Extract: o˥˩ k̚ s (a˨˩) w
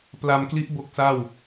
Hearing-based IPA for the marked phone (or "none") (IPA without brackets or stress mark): a˥˩